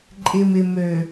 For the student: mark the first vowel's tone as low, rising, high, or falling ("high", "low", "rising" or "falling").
low